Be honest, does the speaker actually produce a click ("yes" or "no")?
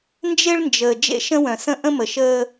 no